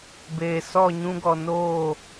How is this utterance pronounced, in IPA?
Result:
beː˨sɔ˦˨ ɲũ˧ɡɔ˨ noː˦˨

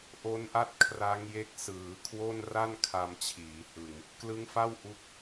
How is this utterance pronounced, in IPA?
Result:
ʔo˦˥nʔa˥˩t̚ kʰra˦˥ŋje˦˥k̚ sɯː˩˦kʰwo˥˩n ra˥˩nkʰa˧mt͡ɕʰiː˩˦ hɯ˧ŋ | klɯ˦˥ŋfa˥˩w ʔu˦˥k̚

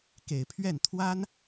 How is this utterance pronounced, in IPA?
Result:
ke˨˩ɪ̯pʰɥɛ˥˩n t̪ʰwa˥n

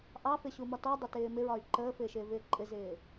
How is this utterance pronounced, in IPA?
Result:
ʔɑfɪɕumɒ tɔdˤɪtɪː mɪɹɒy̯ ǃəːfɪːʃɪːvɪː ǃʼɪzɪː

